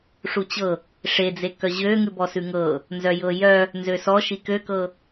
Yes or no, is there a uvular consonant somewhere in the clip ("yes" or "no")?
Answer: no